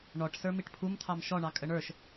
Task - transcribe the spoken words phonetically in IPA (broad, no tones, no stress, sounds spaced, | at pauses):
ɳ ɔ ʈ s ə˞ m i ʈ pʰ u m t̪ʰ ɑ m ʃ ɔ ɳ ɑ kʼ ə ɳ ə˞ ʃ